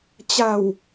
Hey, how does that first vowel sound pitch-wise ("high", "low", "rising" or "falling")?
low